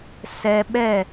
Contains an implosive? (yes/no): yes